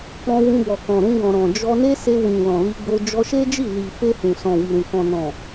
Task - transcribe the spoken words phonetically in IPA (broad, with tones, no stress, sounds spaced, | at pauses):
k͡p ɔ̃˧ w ũ˧ b ɔ˨ k ɔ̃˨ ɾ ũ˧ ɡ ɔ̃˨ ɾ ɔ̃˨ d͡ʒ ɔ˧ n e˦ s e˧ w ĩ˨ l ɔ̃˨ l i˧ ɡ͡b o˧ d͡ʒ ɔ˧ ʃ e˦ d͡ʒ i˦˨ l i˨ f e˧ h ũ˨ s ɔ̃˨ w i˨ ɾ ũ˨ k ɔ̃˨ n ɔ̃˨